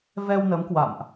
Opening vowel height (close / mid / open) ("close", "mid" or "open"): mid